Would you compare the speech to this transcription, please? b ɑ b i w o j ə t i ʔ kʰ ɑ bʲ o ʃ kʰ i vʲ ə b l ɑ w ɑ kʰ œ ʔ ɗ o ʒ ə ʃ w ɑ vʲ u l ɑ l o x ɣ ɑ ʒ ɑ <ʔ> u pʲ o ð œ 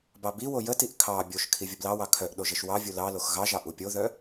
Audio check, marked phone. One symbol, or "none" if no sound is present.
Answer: ʔ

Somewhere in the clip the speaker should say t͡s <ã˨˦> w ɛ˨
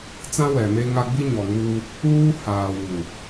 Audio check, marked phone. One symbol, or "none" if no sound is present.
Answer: ã˦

